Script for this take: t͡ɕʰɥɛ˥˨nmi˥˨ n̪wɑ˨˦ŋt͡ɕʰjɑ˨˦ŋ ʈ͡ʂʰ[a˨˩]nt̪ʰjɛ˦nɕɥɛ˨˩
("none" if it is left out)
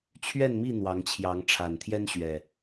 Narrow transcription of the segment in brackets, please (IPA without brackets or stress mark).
a˨˩